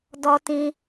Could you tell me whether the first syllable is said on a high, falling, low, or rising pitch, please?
low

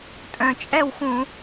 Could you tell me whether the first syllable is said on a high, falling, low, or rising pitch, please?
low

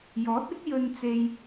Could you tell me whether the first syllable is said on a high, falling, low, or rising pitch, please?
rising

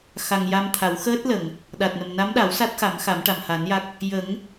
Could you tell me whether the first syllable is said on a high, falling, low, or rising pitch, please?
low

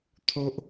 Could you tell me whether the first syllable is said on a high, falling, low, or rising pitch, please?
high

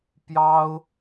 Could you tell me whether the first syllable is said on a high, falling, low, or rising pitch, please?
high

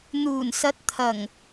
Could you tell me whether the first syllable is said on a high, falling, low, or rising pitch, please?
low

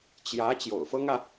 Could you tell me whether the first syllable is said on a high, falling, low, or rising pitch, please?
rising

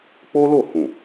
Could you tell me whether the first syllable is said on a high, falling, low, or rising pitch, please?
high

